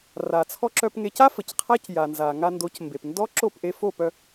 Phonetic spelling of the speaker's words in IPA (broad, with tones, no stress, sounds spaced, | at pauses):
r a˩ t͡sʰ ɔ˧ ǁ œ˧ p ŋ e˧ c a˥ f ə˩ c qʰ a˥ c j a˩ n z a˩ ŋ a˧ n d o˩˥ c m b e˩ p n d ɔ˥ ǁ o˥˩ p ʔ e˧ f o˥˩ p œ˧